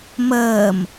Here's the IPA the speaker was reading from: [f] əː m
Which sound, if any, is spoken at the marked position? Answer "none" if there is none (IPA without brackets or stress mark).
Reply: m